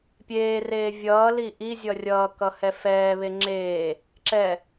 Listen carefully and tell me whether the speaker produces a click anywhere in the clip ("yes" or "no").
yes